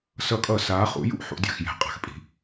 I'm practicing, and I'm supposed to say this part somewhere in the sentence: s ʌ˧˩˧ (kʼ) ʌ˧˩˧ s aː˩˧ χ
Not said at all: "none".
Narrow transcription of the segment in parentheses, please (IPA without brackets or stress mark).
kʼ